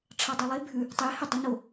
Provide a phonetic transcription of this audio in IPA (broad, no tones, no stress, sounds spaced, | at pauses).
ʈ͡ʂʰ ɑ dˤ ɛ lˠ e bʱ ʉ | tˤ e h ø dˤ ʉ n o